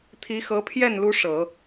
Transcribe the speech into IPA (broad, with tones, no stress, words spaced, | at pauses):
t̪ʰi˧˥xɤ˧˥pʰjɛ˥˩n lu˥ʂɤ˨˩˦